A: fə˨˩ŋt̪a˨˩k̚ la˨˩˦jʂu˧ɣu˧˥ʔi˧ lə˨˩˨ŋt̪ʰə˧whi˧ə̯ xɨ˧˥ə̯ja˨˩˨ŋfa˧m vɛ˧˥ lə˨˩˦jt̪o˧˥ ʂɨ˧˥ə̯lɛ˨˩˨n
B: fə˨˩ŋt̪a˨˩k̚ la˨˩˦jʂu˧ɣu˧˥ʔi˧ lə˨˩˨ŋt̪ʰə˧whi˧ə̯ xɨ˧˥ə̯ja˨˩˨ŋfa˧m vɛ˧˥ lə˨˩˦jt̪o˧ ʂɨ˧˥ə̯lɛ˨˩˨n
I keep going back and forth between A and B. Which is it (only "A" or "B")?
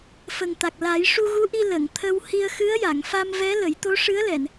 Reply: A